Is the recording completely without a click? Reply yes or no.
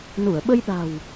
yes